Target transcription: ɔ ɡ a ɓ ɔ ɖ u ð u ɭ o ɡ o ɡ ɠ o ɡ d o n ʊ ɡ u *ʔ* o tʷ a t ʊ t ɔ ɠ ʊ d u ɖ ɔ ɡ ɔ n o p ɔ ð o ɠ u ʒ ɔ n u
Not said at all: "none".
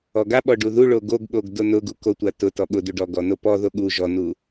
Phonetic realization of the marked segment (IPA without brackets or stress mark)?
k